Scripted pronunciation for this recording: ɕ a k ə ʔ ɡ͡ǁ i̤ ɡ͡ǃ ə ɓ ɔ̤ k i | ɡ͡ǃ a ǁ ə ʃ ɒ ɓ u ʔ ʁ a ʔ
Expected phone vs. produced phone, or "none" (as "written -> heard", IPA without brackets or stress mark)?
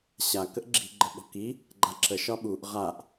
none